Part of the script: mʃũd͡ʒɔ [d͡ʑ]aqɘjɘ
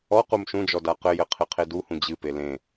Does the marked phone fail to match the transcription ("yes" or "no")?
yes